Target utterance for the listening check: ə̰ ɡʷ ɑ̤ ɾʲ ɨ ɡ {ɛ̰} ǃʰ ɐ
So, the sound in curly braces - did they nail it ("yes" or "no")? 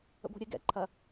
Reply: yes